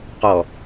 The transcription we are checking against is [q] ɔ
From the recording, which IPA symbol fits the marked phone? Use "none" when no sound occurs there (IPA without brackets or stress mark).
q